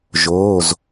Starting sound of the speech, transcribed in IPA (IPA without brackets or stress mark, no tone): ʒ